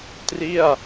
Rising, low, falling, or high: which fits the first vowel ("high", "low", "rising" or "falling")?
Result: falling